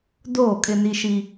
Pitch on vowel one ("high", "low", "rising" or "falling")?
falling